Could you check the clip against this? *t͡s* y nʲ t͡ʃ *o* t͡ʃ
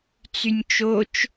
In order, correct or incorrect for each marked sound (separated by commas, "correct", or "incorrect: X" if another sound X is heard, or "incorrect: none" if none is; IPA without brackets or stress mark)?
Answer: correct, correct